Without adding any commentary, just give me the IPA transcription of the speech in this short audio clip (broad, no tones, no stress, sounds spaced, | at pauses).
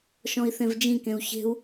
ʃ ɔ̃ i̯ θ ẽ v d͡ʒ ĩ k ẽ u̯ ç e̤ u̯